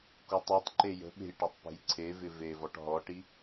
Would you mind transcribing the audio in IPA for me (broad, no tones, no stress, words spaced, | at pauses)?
kutˤøtˤǃe jə̤ɓe̤j ʈatˤpe̤jǀʰevɪ vevɔʈ ɦɔʈi